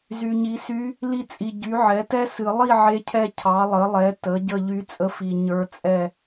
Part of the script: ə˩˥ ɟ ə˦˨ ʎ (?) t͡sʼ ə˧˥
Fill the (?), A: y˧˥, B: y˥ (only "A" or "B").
A